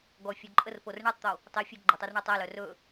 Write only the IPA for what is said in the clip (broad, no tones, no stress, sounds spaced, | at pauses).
ɡ ɔ fʲ o ǃʼ ə r p o r ɳ ɛ tˤ t̪ o | tˤ i fʲ o ɡ͡ǃ ɵ tˤ ɔ r ɳ œ tˤ ɛ l œ r ɵ